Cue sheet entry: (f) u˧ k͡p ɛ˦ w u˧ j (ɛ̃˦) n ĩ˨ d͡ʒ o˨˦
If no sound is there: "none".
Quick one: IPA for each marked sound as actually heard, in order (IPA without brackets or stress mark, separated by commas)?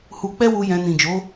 h, ɛ̃˧